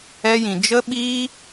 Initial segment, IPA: ɛ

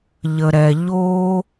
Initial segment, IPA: ʎ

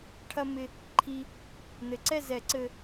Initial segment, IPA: ʈʰ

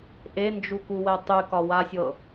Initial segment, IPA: ʔ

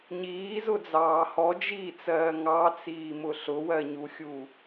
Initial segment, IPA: ɲ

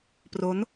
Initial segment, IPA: p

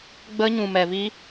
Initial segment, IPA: ɡ͡b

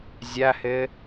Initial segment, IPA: zʲ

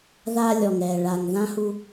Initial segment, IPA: ð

